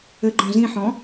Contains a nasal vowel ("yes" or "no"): yes